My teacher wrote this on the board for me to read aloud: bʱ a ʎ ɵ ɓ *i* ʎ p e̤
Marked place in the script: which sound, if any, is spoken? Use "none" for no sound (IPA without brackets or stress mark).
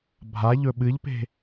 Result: ɨ